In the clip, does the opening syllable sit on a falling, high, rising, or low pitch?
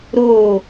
falling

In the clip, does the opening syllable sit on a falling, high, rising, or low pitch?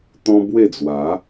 high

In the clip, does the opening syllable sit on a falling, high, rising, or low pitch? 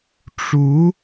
rising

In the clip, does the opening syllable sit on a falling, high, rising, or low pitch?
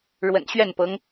low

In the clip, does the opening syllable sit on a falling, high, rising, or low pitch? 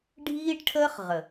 high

